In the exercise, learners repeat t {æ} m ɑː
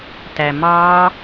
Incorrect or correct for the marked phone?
correct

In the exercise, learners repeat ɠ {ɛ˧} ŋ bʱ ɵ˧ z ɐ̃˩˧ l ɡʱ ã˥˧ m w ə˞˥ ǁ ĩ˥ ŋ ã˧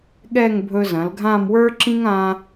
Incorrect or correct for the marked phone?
incorrect: ɛ˥˧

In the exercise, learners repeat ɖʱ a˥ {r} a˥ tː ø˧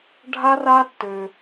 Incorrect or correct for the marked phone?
correct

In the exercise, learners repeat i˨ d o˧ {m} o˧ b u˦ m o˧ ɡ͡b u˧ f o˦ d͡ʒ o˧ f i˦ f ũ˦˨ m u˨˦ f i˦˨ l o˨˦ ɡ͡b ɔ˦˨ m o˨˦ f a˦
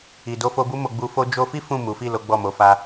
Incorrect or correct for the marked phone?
incorrect: f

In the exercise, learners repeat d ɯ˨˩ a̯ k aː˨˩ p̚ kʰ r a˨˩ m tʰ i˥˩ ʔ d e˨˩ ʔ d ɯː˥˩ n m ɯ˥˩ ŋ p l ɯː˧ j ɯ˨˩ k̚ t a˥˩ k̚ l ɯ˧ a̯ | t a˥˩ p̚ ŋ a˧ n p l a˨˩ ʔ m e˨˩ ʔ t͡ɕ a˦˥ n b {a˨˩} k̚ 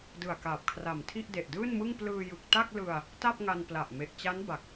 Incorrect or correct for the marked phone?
correct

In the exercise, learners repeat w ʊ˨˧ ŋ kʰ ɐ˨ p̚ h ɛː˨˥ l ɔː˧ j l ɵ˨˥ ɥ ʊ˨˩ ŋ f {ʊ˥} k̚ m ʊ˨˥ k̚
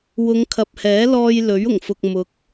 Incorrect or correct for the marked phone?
incorrect: ʊ˨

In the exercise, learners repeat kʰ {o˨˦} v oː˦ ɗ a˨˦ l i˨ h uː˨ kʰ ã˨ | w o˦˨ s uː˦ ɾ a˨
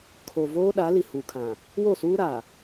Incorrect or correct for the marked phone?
incorrect: o˨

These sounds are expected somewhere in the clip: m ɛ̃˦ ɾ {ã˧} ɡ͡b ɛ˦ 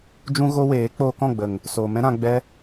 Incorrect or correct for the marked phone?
correct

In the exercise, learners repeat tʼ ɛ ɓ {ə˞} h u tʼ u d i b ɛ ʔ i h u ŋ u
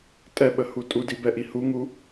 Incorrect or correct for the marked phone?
incorrect: ə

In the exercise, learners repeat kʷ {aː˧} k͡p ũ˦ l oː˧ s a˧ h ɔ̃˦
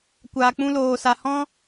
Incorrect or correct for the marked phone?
correct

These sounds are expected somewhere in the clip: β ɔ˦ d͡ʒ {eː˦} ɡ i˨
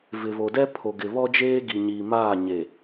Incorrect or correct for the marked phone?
correct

